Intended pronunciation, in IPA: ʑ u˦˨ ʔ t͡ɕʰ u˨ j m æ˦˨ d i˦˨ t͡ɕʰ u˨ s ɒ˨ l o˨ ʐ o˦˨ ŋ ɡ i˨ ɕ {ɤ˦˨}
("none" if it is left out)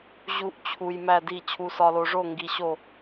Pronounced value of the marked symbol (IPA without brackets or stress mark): o˦˨